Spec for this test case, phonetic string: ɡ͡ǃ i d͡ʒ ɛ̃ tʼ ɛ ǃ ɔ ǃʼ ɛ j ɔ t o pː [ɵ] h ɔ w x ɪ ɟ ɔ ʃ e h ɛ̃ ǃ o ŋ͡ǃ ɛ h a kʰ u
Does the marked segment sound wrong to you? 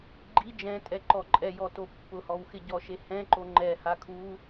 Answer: yes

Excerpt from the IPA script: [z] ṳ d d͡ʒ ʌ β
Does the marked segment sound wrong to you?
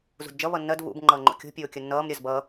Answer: no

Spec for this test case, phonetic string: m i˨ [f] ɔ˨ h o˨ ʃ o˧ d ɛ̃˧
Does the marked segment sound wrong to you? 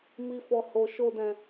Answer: no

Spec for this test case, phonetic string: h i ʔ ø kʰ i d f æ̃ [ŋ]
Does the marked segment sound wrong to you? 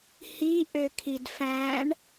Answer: yes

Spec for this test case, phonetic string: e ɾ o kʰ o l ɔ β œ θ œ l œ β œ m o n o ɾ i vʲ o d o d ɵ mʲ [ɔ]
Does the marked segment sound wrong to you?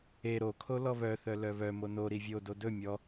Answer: no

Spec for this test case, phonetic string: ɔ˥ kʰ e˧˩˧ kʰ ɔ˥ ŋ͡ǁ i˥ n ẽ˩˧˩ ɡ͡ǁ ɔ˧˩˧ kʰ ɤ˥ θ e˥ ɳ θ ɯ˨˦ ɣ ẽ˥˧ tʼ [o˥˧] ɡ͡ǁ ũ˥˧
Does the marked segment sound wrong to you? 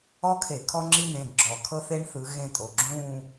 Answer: yes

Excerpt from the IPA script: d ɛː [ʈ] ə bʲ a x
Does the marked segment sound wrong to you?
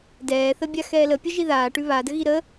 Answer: yes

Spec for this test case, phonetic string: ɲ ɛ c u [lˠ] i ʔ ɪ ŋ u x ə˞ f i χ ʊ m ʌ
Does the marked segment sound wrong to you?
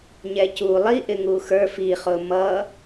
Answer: no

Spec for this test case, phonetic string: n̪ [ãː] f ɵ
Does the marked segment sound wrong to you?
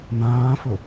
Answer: no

